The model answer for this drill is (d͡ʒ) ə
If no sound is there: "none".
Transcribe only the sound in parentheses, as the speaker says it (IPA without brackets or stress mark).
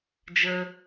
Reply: d͡ʒ